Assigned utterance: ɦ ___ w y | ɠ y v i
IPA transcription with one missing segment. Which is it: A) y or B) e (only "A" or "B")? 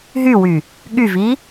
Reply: A